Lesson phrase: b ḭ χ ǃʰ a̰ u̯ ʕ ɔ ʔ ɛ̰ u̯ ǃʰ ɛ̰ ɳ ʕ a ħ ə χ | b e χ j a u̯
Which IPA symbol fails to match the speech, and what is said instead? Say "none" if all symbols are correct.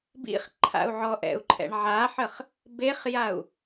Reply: none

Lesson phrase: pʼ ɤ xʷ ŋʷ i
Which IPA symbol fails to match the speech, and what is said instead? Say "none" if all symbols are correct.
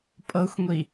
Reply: none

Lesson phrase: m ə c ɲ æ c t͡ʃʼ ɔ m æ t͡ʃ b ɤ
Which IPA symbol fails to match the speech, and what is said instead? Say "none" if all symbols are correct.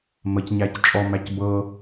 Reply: t͡ʃ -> c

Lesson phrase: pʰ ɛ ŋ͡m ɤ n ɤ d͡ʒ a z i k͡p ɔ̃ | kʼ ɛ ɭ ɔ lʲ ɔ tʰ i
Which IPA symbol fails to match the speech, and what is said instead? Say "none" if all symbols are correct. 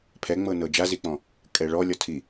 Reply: none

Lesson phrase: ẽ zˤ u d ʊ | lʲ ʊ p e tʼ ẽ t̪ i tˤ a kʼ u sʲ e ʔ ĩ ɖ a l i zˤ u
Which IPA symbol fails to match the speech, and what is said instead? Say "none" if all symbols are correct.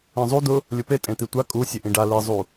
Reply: tˤ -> tʷ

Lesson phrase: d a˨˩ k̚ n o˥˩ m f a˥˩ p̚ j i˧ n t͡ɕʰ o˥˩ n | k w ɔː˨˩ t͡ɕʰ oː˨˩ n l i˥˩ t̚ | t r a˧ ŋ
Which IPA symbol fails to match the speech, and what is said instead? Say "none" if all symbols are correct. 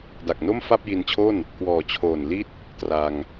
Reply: none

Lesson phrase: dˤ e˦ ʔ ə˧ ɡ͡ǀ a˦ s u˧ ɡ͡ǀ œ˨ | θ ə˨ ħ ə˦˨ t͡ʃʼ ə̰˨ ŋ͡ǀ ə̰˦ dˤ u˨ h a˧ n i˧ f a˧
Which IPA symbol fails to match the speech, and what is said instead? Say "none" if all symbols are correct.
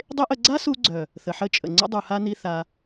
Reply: f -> θ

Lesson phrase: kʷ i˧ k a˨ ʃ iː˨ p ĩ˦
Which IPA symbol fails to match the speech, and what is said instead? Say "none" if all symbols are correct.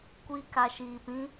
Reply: none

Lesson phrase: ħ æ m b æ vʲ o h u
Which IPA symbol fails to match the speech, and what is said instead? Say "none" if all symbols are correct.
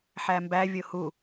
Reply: none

